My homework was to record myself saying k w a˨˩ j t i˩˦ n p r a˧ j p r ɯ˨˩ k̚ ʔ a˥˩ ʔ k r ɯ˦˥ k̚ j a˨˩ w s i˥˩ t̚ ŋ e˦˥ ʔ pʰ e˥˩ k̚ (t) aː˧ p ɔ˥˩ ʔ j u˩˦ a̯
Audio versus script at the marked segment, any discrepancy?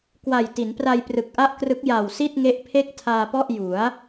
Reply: yes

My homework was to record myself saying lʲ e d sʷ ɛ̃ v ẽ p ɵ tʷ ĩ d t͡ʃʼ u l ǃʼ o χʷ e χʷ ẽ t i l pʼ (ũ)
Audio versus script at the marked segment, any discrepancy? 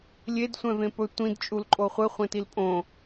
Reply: yes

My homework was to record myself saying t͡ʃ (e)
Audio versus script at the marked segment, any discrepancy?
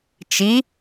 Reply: yes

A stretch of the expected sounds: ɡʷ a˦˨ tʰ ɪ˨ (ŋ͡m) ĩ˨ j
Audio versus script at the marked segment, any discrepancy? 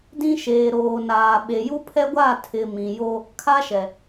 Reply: yes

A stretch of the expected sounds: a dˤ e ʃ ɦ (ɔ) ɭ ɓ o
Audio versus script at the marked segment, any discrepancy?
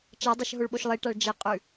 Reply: yes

